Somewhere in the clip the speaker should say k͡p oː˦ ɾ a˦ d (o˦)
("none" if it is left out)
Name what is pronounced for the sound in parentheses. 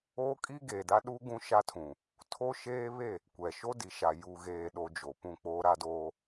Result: oː˦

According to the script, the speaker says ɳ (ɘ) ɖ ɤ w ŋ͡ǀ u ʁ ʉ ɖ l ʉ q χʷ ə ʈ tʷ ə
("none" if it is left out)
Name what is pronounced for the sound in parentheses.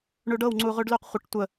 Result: ʉ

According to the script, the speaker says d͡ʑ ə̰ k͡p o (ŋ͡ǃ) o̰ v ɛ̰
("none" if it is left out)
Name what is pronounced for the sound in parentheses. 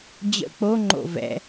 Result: ŋ͡ǃ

